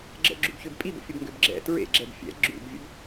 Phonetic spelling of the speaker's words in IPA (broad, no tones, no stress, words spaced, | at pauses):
ɡ͡ǁə̰ɡ͡ǁubçøb pʼibə̰fʲəbŋɡøb ɡ͡ǁɛ̰ tɹḛɡ͡ǁɛb fʲɛ̰ ɡ͡ǁṵbvʲə̰b